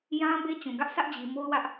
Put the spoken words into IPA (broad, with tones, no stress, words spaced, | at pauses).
jã˦ be˦ t͡ɕũ˨ɡä˦ʔ sʰä˦ʔd͡ʑi˨ mo˦ʊ̯wä˦ʔ